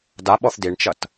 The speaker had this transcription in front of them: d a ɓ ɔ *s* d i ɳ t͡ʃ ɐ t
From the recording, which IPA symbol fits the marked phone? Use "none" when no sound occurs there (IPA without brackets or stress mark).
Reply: θ